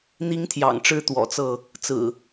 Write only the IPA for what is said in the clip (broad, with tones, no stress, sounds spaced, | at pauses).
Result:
n̪ i˦ ŋ t̪ʰ j ɑ̰˨˩ ŋ ʈ͡ʂ ɻ̩˦ t̪ w ɔ̰˨˩ t͡s ɤ˥˨ | t͡s ɹ̩˨˩